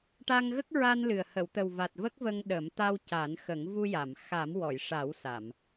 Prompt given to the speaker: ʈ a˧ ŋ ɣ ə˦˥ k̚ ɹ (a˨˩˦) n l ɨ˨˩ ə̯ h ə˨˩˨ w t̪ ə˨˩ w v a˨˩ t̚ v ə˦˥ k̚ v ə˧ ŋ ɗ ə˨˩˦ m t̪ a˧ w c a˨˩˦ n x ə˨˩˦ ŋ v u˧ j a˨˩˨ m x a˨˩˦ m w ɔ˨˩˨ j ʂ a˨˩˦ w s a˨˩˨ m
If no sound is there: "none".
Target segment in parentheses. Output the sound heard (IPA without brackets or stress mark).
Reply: a˧